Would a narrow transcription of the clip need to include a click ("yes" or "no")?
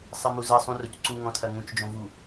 yes